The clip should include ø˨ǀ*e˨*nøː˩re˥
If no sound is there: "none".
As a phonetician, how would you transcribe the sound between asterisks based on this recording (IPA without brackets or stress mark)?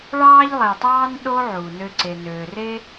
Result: e˩